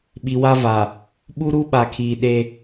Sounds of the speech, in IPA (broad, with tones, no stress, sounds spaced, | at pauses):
ɓ i˨ w a˦ v a˨ | ɓ u˦ ɾ u˦ ɓ a˨ kʰ iː˨ ɗ e˦